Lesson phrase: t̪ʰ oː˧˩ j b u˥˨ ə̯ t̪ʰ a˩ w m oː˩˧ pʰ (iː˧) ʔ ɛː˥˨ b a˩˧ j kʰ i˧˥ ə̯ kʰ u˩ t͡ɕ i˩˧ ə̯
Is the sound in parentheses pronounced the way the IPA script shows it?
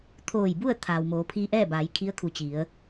yes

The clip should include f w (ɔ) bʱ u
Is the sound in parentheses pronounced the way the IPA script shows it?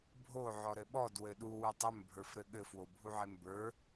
no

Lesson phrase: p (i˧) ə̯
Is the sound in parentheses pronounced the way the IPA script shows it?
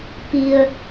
yes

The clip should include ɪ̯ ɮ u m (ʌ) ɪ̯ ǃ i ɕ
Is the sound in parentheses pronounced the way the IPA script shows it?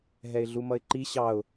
yes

